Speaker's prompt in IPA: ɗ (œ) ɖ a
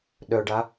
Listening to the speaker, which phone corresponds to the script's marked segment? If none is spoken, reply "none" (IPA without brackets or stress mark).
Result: œ